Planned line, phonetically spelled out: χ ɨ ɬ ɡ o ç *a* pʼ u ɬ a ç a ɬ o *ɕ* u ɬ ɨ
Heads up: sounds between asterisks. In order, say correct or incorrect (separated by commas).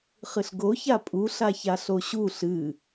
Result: correct, correct